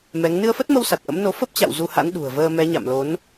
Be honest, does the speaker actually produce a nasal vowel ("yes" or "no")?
no